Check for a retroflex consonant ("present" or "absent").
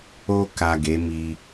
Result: absent